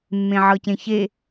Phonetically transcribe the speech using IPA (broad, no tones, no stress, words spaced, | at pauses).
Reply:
mːẽʕɤcẽçe